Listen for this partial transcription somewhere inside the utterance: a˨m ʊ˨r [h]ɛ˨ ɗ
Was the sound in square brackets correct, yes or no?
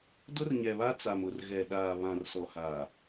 no